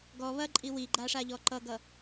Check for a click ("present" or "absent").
present